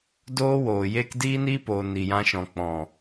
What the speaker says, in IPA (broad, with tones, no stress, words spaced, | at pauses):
doː˦woː˨jeː˦k diː˦niː˦poː˨ ni˨jã˧ʃɔ̃˨ k͡pɔ̃˨